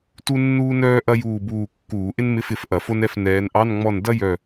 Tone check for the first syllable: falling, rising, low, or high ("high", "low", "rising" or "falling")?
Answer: high